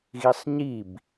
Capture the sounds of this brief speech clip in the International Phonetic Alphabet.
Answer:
ɣ i sˤ ɲ i b

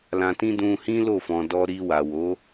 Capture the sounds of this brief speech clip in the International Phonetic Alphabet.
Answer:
l ã˧ t ĩ˦ d ũ˧ h ĩ˦ l o˦˨ f ɔ̃˨ d ɔ˧ ɾ i˧ w a˨ w o˨˦

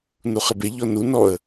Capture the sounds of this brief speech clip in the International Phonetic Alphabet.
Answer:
n u χ ɪ b e ʎ ɔ n u n ɔ ə̯

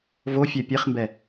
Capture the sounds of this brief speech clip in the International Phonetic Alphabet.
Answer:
v o fʲ ɛ pʲ e χ m b ɛ

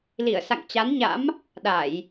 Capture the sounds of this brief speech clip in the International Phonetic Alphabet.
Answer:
l i˧˩ ə̯ s a̰˧˨ ŋ t͡ɕ a˨˦ n ɲ a̰˧˥ m | ɗ a˧˩˨ j

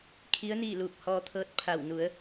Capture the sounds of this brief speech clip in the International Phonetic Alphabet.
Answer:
kʰ i˧˥ ə̯ n iː˥˨ l uː˧˩ k̚ h ɔː˧ t̪ʰ ɤː˧˥ t̚ pʰ a˧˩ w n u˩˧ ə̯

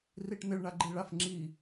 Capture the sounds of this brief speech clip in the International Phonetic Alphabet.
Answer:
r i ʈ n̪ ɪ ɭ ɳ a ɡ͡ǃ i ɭ a f ŋ͡ǁ i

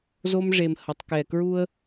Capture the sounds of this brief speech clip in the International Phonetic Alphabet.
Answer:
z o˥ m ʐ e˦ m h ʌ˥ tˤ k ɛ˦ k ɹ u˥ ə̯

